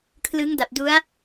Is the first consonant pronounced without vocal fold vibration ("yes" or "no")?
yes